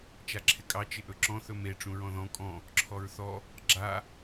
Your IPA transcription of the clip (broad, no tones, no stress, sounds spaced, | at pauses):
t͡ʃ a ǁʰ ɪ kʼ ɑ t͡ʃ ɪ ʔ ɵ ǁ ɔ̃ θ ɵ m e ʈ͡ʂ ũ ɹ ɔ̃ ð ɔ̃ kʼ ɔ̃ | ǁʰ ɔ ɹ θ ɔ | ɡ͡ǁ a